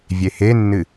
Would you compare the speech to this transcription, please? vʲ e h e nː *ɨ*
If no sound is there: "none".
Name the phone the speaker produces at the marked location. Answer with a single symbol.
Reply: ɨ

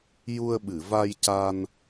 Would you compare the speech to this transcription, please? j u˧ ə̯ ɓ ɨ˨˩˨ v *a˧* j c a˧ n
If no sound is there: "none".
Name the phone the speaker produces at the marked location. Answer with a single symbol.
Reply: a˧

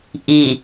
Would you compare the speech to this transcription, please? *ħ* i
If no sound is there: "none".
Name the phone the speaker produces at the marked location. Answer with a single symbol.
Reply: ʔ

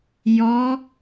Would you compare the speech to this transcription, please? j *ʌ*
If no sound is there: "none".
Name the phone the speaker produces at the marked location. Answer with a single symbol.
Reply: ɔ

